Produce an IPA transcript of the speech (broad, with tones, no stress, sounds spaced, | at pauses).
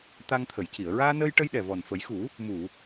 t̪ a˧ ŋ t̪ʰ ə˨˩˨ j c i˨˩˨ ə̯ ɹ aː˧ n əː˧ j ʈ ə˧ j ɗ ɛ˨˩ v ɔ˨˩ n f ə˨˩˦ j x u˨˩˦ | m u˨˩˨